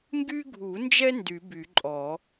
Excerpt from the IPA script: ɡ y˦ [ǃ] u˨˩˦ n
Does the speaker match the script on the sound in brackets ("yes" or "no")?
no